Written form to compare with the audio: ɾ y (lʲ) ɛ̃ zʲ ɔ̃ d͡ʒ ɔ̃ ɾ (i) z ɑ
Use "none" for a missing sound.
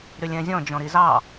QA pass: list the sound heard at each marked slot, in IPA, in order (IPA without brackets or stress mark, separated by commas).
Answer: lʲ, i